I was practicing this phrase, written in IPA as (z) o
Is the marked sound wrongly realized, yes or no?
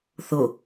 yes